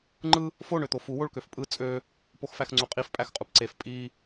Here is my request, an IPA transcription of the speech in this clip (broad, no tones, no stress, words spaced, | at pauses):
ŋ͡ǃɯ | fo ɳøt̪ofu woɭkøfpʼɯ t͡sʼø | poxfæxŋ͡ǀuqʼif pʼæxqʼupǀef pʼi